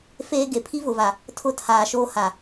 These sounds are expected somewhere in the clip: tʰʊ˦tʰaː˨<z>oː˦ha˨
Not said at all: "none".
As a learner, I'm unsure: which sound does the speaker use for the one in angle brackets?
ʃ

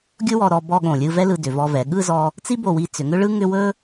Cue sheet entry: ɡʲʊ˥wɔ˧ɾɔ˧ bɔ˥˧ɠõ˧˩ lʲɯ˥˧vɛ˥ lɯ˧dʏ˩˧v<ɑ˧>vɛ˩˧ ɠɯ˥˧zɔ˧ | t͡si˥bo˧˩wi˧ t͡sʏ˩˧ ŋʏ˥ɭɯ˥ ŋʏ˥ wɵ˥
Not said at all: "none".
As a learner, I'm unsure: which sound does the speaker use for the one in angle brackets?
ɔ˧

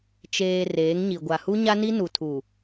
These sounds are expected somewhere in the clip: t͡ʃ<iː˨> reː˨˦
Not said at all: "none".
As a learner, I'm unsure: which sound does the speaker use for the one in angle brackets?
eː˨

